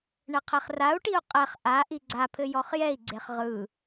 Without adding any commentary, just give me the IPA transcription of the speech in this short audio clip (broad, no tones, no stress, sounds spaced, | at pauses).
ɳ ɘ qʰ e χ r a u̯ ʈ i u̯ qʼ ɛ χ ʔ a ʔ i ɡ͡ǀ a pʰ ɘ j ɔ χ j ɛ i̯ ɡ͡ǀ e χ ʁ ɯ